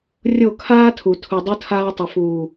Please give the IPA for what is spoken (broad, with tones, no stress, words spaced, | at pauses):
rʲo˦˨ kʰaː˦tʰu˨ tʰu˨ dˤu˦tʰaː˦ tˤɐ˨fuː˨